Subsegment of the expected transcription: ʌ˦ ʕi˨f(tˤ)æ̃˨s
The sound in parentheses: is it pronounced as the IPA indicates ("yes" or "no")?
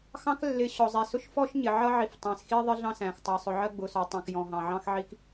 yes